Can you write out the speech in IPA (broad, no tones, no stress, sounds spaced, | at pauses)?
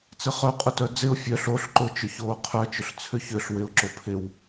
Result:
t͡s ɪ χ œ qʼ ʊ t œ d͡z ɪ ʊ̯ fʲ œ ɬ o ɬ ǃ ʊ t͡ʃ ʊ ç oː qʰ œ t͡ʃ ʏ ɬ t͡sʰ ʏ ç ʏ ɬ w ɪ ʊ̯ ǁ o pʰ ɪ w